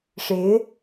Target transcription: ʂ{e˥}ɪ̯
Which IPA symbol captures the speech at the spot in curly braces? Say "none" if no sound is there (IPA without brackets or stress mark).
e˧˥